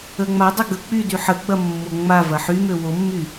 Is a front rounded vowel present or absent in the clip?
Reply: present